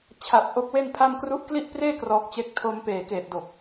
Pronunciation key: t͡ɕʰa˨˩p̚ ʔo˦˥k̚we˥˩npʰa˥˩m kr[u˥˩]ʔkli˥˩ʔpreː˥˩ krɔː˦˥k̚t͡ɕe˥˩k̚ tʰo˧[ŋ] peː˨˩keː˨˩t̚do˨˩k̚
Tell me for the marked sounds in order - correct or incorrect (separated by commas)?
incorrect, incorrect